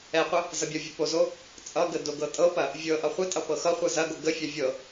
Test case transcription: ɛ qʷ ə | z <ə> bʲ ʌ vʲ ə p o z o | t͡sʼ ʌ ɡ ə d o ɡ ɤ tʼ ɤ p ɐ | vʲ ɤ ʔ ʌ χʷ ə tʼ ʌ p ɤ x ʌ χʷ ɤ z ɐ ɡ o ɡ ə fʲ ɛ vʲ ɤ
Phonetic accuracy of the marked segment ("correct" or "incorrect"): incorrect